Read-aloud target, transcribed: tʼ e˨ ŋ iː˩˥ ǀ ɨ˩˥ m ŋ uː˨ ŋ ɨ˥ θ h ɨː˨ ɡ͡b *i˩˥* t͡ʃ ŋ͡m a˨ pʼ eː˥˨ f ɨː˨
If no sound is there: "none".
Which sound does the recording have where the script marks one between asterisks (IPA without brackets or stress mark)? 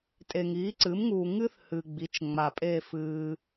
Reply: i˩˥